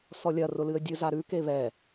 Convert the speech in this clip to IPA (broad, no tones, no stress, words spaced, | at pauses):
sɔlʲɐ rʊlɨə̯dʲɨ zaɾʉ keβɛ